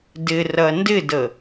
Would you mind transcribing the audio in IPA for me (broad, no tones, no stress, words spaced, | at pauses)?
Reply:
dɪrɐ ndɪdə